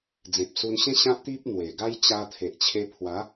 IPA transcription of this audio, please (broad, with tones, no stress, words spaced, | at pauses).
d͡zẽ˨p̚su˧nɕẽ˦ ɕã˦p̚t̪i˦p̚ n̪we˨˩ ɡa˦j t͡ɕa˧ t̪ʰe˨ʔt͡ɕʰe˧pʰwa˨˦